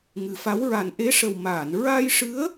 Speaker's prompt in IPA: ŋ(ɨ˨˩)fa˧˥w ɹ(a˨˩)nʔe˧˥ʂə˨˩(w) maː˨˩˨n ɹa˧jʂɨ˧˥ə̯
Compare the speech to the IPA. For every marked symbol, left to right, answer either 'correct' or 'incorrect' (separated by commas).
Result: correct, correct, correct